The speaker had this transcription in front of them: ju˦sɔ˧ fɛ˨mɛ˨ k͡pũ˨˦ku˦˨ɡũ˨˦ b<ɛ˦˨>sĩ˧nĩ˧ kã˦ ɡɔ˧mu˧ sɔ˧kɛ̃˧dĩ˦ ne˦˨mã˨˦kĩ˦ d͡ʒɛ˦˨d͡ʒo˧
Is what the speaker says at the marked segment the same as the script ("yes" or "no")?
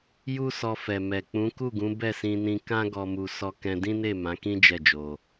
yes